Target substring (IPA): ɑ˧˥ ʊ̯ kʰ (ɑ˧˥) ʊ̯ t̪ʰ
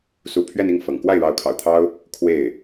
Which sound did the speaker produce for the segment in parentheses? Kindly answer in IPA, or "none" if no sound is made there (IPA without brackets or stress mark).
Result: ɑ̰˨˩